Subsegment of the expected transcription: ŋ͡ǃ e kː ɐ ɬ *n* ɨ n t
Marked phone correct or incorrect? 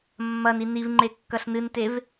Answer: correct